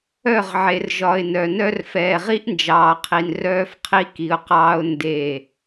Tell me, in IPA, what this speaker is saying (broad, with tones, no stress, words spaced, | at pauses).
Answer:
œ˦˨ʁʕe˨r ʒɒ˨ɪ̯nœ˨nœ˦r fɛː˨ʁi˦ʔnd͡ʒɑː˨qʰi˨n rœː˦fqʰi˦ki˨ʊ̯qɑː˦ʊ̯ nde˦˨